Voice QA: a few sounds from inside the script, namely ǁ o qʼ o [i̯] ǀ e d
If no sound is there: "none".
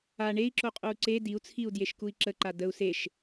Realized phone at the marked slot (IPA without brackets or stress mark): u̯